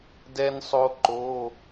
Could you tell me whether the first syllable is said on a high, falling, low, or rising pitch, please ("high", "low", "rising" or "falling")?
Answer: high